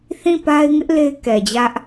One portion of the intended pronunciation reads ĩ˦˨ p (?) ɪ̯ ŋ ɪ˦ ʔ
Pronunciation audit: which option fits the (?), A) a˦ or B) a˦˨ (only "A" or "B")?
A